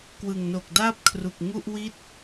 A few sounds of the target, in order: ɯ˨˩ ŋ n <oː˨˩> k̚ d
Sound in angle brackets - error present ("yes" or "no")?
yes